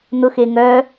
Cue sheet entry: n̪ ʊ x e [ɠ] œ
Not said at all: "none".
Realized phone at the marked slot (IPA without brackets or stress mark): ŋ